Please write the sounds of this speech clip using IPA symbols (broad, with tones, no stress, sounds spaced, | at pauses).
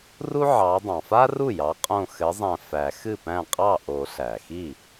r u˥ ʕ ɑ˨˦ dˤ ɑ̃˩ f a˥ r u˥˩ j ɑ˨˦ qʼ õ˧˩ x ɘ˨˦ zˤ æ̃˧˩ f æ˨˩˦ x ɨ˥˩ p æ̃˥˩ qʼ ɑ˥˩ ʔ o˨˩˦ ɬ æ˩ x i˥˩